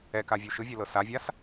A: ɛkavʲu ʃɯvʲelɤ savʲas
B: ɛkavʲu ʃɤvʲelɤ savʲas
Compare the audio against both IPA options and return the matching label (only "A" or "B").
A